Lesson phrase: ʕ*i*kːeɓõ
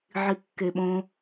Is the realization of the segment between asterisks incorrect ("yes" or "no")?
no